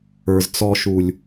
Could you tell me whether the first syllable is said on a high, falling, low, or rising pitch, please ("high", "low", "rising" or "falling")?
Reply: low